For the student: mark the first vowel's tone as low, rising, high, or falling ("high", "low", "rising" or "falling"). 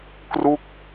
falling